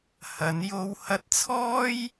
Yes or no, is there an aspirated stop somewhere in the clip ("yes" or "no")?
yes